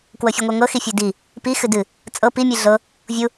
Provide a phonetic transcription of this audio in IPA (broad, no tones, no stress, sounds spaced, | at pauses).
k w ɤ fʲ e ŋʷ ɤ ŋ ɤ x i fʲ u d i | p i x ɨ d ɨ | t͡sʼ ɤ p i mʲ ɨ ɮ ɤ | vʲ u